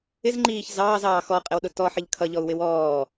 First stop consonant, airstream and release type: click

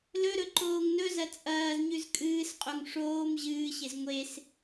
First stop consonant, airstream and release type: click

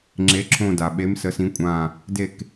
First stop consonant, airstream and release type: click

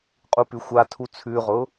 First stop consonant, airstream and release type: ejective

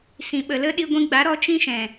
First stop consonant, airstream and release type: implosive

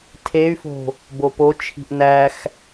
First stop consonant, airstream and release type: aspirated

